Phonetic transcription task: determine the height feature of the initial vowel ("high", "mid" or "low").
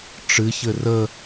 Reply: high